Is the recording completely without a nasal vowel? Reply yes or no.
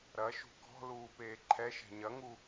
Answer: yes